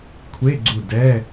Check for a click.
present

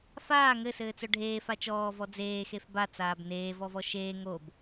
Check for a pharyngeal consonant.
absent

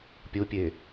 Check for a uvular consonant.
absent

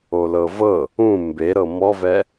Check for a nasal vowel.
present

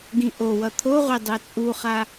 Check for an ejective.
present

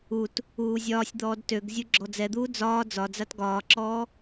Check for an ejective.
absent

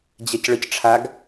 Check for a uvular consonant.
absent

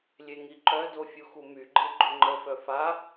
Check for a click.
present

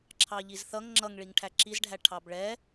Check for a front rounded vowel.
absent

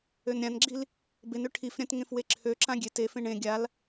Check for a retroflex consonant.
present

